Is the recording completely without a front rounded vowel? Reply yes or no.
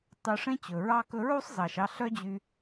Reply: no